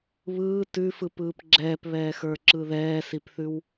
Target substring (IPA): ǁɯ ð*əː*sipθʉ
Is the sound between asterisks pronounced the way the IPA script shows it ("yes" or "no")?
no